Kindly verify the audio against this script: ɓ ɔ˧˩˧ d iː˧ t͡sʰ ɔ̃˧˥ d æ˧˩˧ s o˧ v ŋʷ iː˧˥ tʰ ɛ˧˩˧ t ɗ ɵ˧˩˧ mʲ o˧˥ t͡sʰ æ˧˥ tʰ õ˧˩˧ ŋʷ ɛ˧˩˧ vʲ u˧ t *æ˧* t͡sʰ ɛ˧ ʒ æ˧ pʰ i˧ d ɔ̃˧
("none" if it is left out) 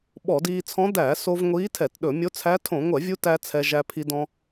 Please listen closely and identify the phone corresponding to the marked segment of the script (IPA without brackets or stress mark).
æ˧